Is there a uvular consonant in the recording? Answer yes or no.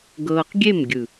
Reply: yes